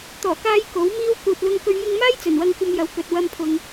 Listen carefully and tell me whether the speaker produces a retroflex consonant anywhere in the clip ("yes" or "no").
no